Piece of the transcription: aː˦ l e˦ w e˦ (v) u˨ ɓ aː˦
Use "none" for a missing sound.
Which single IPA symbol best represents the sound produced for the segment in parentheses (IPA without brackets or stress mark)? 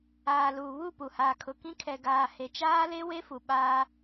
f